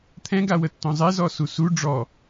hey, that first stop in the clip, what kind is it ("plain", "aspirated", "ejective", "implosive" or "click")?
aspirated